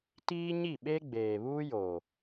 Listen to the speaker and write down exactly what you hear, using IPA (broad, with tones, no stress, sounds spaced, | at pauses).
t iː˦ ɲ i˦˨ ɓ e˦ ɡ͡b eː˨ β uː˦ j o˨